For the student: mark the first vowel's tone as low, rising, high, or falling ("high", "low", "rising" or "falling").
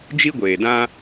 high